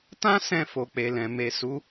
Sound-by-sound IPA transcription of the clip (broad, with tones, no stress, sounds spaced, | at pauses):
t ã˦ s ɛ̃˦˨ f o˨ k͡p e˨ l ɛ̃˨ m e˨ s u˨˦